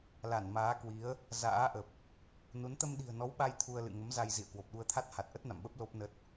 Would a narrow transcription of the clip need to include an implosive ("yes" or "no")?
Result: yes